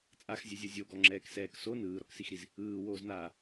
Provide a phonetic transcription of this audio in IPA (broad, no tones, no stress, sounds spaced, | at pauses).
t͡sʼ a x zʲ ɛ zʲ ɤ zʲ o ɡ ɔ ŋ͡ǁ ɛː k s ɛː k s o n ɯː ɾ ɔ k s i x ɾ i z | ɯː w oː z n aː